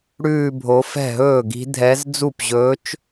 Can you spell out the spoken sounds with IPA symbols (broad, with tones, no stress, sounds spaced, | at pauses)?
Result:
ɽ ʉː˥˧ bʱ o˧˥ f ɛ̤˥˩ ɦ ɵː˥˩ ɡ i̤˧˥ dʱ ɛ˧˥ z d͡z u˥˩ p ʑ ɵː˧˥ t͡ʃ